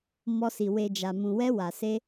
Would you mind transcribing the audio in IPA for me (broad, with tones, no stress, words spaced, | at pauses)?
mɔ˧si˨ we˨ d͡ʒa˨mũ˨wɛ˧ wa˨ se˧